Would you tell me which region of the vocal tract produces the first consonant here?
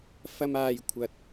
lips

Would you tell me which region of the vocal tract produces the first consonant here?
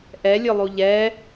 throat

